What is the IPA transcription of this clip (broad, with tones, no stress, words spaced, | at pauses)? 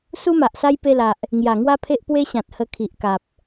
su˦ma˨ʔsa˦j pe˧la˨ʔ | ŋja˨˩ŋwa˦pʰe˦ʔ pwe˦ ɕã˨t̚hə˧kʰi˨ʔka˨p̚